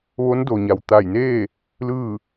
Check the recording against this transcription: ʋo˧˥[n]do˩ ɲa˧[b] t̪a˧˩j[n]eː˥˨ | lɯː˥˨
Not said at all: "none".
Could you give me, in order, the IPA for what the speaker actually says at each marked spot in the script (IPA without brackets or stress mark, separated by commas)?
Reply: n, w, n